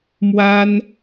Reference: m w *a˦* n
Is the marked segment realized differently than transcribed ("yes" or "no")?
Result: no